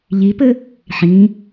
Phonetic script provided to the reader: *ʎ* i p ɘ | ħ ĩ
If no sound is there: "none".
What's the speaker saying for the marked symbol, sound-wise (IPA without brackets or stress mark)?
ʎ